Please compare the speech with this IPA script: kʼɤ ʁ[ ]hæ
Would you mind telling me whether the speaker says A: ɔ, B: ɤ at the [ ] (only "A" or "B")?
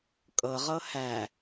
B